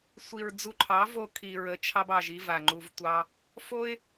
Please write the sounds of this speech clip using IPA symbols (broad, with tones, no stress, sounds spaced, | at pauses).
sʷ i˨ ɹ d͡z u˧ ǃʰ ɑ˨˦ v o˧ kʰ i˨ ɹ ə˨˦ t͡ʃʰ ɑ˧ b ɑ˨ ʒ i˦ v a˨ ŋ͡ǃ u˧ v tʷ ɑ˦ | f o˦ ɪ̯